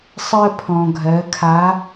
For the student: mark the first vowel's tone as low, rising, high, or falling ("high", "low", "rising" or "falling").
high